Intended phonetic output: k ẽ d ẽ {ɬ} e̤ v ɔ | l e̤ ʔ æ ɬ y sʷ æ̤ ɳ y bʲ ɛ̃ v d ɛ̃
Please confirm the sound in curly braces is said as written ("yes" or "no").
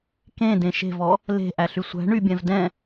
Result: no